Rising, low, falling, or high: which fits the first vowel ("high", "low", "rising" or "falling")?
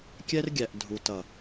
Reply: high